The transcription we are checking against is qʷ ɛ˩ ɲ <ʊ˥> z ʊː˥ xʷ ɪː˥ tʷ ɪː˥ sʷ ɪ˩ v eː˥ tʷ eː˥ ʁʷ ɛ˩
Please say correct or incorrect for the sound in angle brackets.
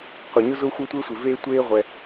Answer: correct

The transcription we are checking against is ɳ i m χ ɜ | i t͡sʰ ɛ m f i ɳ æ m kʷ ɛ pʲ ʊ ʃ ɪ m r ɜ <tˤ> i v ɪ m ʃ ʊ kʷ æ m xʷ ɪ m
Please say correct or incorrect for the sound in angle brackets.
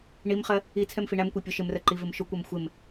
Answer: incorrect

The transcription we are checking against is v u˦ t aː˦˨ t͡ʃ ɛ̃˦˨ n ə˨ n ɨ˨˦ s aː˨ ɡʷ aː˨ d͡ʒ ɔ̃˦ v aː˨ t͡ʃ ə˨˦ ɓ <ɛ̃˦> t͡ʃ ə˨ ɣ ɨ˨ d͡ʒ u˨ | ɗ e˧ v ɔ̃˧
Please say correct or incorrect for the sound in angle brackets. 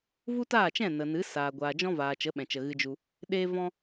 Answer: incorrect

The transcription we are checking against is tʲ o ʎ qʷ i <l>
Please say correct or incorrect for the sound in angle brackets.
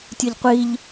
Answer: incorrect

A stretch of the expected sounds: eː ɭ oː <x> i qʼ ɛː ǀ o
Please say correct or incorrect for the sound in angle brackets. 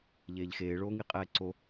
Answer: incorrect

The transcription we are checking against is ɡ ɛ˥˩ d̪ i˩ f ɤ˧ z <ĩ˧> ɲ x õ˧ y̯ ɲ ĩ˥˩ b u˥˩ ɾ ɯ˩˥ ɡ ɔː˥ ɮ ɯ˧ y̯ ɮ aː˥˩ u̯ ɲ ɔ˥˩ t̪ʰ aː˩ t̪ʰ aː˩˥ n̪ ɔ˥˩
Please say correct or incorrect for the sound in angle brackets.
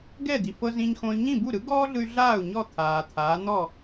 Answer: correct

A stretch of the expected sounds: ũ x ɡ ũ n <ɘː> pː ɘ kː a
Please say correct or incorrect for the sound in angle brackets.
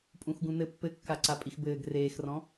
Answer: incorrect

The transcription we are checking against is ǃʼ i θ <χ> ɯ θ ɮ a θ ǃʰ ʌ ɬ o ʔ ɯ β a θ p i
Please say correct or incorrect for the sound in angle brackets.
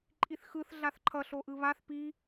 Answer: incorrect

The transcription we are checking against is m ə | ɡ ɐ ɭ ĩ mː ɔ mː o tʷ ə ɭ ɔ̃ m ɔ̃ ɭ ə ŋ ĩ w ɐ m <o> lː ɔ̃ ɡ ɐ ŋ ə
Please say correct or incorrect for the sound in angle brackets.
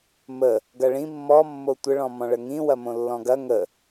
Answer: incorrect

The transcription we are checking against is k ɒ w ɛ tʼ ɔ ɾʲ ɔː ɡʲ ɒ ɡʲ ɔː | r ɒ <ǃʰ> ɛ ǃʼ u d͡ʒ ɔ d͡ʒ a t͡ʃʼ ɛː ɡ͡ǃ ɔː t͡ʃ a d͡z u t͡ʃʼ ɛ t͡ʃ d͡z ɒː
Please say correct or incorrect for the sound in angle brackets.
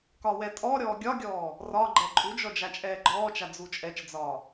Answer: incorrect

